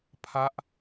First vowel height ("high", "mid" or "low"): low